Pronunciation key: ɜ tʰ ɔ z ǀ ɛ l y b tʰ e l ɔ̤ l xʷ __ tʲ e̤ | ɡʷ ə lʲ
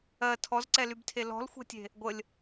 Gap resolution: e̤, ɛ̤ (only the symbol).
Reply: ɛ̤